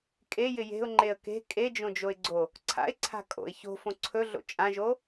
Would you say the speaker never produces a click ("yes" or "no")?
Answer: no